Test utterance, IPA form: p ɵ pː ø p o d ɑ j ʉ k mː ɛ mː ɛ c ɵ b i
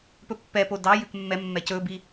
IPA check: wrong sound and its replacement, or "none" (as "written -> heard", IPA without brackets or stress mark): ø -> ɛ